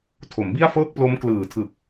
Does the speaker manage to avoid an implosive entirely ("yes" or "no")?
yes